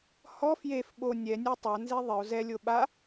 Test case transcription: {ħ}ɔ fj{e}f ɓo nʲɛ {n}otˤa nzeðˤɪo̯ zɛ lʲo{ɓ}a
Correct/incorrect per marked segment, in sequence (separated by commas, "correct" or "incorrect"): incorrect, correct, incorrect, correct